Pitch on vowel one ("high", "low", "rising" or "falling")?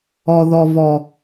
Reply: low